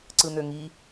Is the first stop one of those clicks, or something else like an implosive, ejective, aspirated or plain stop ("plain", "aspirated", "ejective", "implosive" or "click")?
click